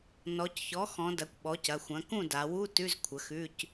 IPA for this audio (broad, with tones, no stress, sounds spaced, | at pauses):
n ɔ˩˧ c ç ɔ˩˥ x ɔ̃˩˧ d ɐ˩˥ kʷ ɓ ɔ˩˥ c ɐ˩˧˩ xʷ ɐ̃˩˥ k ũ˥˩ d a˩˧ w u˧˥˧ t ʉ˧˥˧ z kʷʰ ə˩˥ x ʉ˧˥˧ c